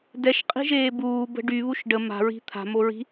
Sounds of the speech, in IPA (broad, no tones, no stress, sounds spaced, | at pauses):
d ɛ ʃ qʼ i̤ ʒ eː b uː b ə̤ ɖ y β u ʃ ɖ ə m a̤ ɹ i̤ t̪ʰ a̤ m o ɹ i̤